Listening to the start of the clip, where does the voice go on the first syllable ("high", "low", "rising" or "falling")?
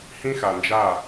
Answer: high